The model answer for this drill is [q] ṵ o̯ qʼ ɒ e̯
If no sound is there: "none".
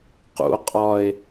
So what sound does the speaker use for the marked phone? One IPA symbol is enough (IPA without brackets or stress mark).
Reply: q